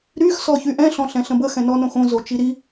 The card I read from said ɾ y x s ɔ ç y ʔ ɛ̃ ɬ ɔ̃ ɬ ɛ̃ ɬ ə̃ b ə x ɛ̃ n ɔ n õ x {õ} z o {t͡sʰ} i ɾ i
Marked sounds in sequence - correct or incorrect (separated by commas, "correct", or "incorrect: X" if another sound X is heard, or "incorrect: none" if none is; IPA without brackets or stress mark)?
correct, incorrect: t͡ʃ